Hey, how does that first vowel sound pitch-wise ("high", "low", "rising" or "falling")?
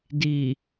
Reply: low